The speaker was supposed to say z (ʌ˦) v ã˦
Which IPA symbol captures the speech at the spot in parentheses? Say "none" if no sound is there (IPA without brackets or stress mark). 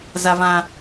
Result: a˦